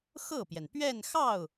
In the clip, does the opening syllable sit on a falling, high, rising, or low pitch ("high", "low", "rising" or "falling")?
falling